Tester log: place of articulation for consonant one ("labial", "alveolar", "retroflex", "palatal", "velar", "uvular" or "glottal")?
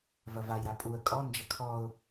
labial